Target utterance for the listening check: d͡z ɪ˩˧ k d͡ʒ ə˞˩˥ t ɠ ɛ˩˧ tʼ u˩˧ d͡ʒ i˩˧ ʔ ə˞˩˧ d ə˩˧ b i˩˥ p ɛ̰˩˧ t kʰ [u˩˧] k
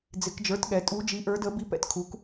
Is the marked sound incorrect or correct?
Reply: correct